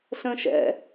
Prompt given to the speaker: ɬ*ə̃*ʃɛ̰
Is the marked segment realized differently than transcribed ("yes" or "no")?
no